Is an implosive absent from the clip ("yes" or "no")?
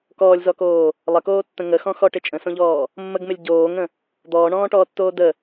yes